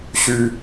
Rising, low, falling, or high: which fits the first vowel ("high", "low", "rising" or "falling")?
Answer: high